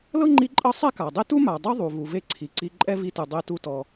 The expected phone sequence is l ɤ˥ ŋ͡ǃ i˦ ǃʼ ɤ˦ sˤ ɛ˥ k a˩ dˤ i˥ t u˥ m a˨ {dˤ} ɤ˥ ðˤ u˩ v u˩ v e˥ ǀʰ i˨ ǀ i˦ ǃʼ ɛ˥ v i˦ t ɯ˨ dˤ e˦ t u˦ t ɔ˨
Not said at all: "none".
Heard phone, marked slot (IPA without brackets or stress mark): dˤ